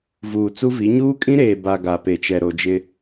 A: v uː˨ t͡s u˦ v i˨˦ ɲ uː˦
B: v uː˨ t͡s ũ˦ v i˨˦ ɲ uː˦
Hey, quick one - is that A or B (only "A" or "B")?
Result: A